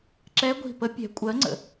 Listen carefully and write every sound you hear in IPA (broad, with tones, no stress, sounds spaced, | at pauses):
ǁ ɛ˧˥ ɡʷ i̤˧˩ p ə˧˥ pʲ ɛ̤˩˥ kʷʼ ɜ˩˥ ŋ͡ǀ ə̰˩